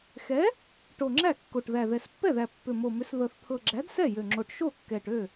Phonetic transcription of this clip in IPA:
x ɛ˨˥ | ʈ o˨˩ ŋ͡ǁ æ˥˩ kː o˨˩ ʈ ð æ˨˩ ð ɛ˨˩ s pː ɛ˥˩ ð æ˨˩ pː ʏ˨˩ m o˨˩ m ʏ˨˥ s ð ɤ˨˩ θ t̪ʰ ɤ˨˩ ɡ͡ǁ æ˨˥ d s ɛ˥˩ j ø˨˩ ŋ͡ǁ o˨˩ ʈ ʃ o˥˩ kː ɛ˨˩ ʈ ø˥˩

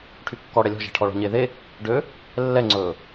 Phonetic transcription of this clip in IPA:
ʈʰ y kː ɔ ɽ ɛ lʲ ɔ̤ ʒ e̤ ʈʰ ɔ ɭ ɔ̤ ɲ eː ð e | ɖ ø | lː ɛ ŋ͡ǀ ɵː

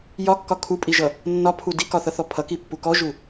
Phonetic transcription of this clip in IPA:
j ɒ kː ɒ kʰ u pʼ i ʒ ʌ | nː ɒ pʰ u d i k ɒ θ ʌ θ ɔ pʰ ʌ k i pː u k ɔ ʒ u

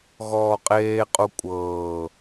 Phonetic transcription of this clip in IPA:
ɣ ɔː qʼ eː qʼ u kʷʼ ɤː

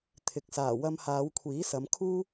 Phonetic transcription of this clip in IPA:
t̪ʰ ɪ˨˥ k̚ s aː˨˩ w ɐ˧ m h aː˨˧ w kʷʰ iː˨˥ s ɐ˨˧ m kʰ uː˥

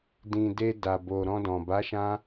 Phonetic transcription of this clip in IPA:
d ĩ˨ d e˧ d a˨ b o˨ ɾ ɔ̃˧ d ɔ̃˨ b a˨˦ ʃ ã˧

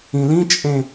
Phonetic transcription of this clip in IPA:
ĩ l ĩ t͡ʃʼ ẽ

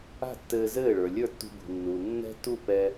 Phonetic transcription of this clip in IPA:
a̤˥˩ tː ɘː˧ z ɘː˥˩ ɭ ə˞˩ lʲ ə˞˥˩ tː ṳ˧ b ṳ˩ nː uː˩ nː ɛ̤˥ t u˥˩ p ɛ˧

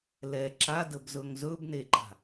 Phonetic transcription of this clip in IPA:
l ɛ ǁ a d ə b z ɵ ŋ z ɵ b n e ǃ a̤

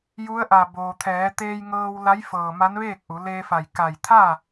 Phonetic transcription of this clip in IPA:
j u˧˥ ə̯ ʔ a˧˩ b oː˩ t̪ʰ ɛː˩˧ t̪ eː˧ j ŋ ɤː˧ w l a˧˥ j f ɤː˧˩ m a˧˥ n ʋ eː˥˨ k̚ ʔ u˩˧ l eː˧ f a˧˩ j k a˧˩ j t̪ʰ a˥˨

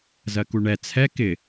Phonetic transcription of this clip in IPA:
z ɜ k u ɳ ɛ t͡sʰ ɛ k ɪ

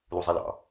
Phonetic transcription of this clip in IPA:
l u zˤ i l ɑ̰

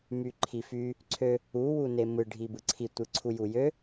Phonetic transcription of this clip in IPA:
m y ǃʰ i f y | ǀʰ ø | u w u n e m ɯ ɖʱ i b ɯ ǀʰ i tʷ ɯ ǀʰ u j u j ø

